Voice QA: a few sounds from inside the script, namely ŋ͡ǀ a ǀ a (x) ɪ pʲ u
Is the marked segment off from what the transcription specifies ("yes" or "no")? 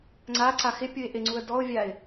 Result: no